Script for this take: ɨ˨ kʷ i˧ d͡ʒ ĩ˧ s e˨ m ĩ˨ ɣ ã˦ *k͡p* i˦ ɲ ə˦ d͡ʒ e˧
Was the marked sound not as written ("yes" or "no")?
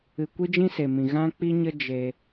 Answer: no